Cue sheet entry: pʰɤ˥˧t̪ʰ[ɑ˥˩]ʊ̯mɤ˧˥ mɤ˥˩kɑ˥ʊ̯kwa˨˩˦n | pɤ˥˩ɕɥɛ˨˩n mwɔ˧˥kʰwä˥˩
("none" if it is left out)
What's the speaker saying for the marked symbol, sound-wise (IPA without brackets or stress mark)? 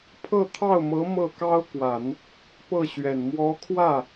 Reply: ɑ˥˩